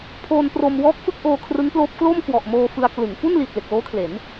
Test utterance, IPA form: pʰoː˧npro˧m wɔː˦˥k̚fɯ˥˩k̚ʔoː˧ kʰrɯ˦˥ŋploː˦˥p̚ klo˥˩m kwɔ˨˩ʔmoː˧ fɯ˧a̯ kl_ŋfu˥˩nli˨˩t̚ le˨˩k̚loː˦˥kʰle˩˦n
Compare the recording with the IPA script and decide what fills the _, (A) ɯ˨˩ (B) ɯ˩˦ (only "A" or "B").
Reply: B